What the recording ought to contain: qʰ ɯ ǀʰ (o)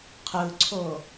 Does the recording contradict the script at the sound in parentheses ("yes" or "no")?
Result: no